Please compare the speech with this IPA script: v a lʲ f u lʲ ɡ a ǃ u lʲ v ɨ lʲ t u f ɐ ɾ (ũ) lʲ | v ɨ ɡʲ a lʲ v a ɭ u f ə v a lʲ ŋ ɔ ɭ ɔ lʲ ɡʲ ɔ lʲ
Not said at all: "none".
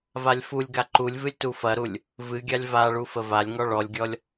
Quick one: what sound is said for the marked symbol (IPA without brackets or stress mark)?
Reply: u